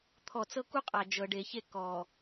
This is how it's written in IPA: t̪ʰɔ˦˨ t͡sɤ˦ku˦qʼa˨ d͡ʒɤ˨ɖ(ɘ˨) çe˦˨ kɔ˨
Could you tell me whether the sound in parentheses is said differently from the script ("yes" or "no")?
yes